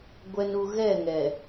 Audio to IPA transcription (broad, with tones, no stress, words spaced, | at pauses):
ɡʷɛ˨nu˨ ɣɛ˦˨ŋɛ˨